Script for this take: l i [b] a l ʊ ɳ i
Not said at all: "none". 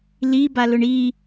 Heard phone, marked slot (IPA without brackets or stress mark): b